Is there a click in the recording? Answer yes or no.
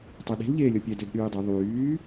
no